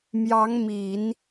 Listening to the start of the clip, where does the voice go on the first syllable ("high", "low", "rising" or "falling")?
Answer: rising